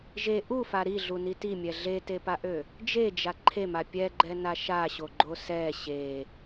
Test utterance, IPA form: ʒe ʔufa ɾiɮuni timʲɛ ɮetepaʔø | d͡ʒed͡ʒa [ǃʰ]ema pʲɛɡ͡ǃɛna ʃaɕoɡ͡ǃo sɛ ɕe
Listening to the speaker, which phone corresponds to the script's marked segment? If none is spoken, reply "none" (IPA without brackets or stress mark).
ǃʰ